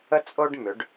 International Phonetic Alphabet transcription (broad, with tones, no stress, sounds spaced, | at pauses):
ə˥ t͡sʼ o˥ ɖ m ʏ˩˧ ɖ